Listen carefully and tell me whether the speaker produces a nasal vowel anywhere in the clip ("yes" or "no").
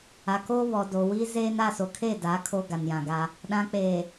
yes